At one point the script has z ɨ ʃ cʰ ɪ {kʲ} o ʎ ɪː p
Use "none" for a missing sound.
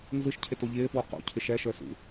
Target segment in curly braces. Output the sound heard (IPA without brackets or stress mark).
t